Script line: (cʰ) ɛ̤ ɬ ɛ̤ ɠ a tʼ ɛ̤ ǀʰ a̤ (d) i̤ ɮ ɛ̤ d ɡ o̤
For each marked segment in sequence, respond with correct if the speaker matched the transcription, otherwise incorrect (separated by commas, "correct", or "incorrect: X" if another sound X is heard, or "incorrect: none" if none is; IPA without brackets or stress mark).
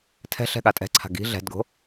incorrect: tʰ, incorrect: ɡ